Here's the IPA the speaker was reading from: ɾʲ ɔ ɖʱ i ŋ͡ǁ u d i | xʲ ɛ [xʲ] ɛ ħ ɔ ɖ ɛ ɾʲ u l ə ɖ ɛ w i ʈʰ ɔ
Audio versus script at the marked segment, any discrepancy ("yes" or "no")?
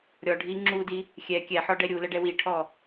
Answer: yes